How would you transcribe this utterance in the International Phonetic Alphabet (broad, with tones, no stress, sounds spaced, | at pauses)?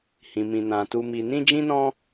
h ĩ˨ m ĩ˨ n ã˨ t u˧ m i˧ n ĩ˦ d͡ʒ ĩ˦ n ɔ̃˦